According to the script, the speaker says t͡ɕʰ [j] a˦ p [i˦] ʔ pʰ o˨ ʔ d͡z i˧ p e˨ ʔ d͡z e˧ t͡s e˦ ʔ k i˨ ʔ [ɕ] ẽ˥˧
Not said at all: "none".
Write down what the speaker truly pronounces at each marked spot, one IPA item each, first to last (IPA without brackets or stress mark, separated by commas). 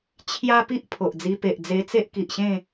j, i˦, ɕ